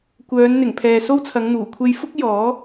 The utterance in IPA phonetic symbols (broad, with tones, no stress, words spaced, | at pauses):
kʷœː˨˧nn̪ɪ˨˩ŋ pʰɛː˨so˥wt͡sʰɐ˨˧ŋn̪uː˨˩ kʷʰe˧jfʊ˥k̚ jɔː˨˥